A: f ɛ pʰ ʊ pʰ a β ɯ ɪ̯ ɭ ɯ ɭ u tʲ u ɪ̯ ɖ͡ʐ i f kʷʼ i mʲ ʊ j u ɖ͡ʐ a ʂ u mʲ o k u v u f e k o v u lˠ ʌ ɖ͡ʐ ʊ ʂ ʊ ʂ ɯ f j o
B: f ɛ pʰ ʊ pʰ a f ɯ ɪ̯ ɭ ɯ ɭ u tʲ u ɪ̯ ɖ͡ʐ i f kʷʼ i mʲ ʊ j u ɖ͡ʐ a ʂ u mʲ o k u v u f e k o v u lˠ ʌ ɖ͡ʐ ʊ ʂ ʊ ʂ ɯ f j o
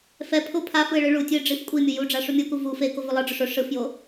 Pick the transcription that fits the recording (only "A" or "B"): B